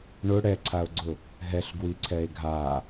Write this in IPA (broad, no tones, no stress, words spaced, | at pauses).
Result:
ɳʊ ɽɛǀʰao̯ɡ͡ǀʊ | ɦɛɬɡwiǀʰɛe̯ ɡʱa